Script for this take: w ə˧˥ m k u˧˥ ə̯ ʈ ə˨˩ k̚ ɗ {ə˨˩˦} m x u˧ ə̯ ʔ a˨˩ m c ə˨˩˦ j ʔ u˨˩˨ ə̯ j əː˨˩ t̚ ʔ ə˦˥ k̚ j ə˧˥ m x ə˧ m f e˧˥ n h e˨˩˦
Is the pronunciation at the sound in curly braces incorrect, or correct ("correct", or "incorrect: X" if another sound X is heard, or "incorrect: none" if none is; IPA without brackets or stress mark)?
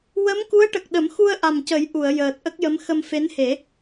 correct